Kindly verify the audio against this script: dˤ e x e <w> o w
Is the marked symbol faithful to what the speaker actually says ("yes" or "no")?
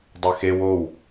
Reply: yes